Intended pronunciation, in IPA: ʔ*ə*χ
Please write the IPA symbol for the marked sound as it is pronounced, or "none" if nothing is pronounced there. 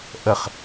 ə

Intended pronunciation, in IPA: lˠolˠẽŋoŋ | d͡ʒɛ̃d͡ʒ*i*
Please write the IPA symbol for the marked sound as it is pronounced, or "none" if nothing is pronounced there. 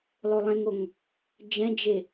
e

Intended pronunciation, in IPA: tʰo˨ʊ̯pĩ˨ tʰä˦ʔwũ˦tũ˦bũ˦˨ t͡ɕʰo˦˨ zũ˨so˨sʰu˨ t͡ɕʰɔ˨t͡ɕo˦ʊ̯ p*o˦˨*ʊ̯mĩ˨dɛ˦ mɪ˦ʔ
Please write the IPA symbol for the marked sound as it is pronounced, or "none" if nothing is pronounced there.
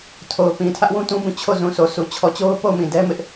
o˦˨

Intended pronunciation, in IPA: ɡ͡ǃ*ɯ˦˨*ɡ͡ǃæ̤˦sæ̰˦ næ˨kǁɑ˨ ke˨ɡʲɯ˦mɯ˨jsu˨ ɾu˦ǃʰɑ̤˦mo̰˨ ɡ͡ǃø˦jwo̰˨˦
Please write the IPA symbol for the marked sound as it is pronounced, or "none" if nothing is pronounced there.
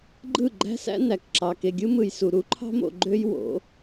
ɯ˦˨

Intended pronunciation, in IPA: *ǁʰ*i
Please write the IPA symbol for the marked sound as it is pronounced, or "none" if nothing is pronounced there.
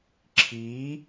ǁʰ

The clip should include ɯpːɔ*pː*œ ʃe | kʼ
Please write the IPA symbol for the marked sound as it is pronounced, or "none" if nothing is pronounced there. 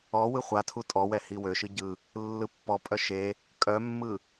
pʼ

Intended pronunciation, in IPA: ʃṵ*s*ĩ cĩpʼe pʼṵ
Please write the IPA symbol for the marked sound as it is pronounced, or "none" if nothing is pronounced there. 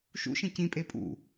ʃ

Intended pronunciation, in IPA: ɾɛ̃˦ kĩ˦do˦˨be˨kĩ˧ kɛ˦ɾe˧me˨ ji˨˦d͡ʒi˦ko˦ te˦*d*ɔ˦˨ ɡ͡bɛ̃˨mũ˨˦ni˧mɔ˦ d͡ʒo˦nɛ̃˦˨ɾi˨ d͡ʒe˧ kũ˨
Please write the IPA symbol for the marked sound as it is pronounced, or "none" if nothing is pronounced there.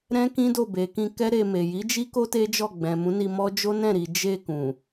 d͡ʒ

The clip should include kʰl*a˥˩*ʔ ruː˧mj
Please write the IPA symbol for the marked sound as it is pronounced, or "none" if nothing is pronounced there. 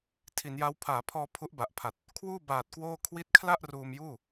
a˥˩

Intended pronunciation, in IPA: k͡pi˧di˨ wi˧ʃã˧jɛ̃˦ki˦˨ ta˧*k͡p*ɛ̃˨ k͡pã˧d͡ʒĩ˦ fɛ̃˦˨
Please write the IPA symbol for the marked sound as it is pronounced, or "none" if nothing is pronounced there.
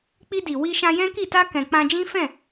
k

